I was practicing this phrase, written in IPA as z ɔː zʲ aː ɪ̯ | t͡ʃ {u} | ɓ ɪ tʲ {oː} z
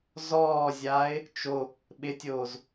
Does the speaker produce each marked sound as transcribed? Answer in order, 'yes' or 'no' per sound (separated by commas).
no, yes